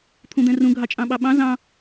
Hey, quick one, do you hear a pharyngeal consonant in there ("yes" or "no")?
no